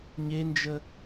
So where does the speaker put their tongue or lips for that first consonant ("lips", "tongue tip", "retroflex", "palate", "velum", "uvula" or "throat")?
palate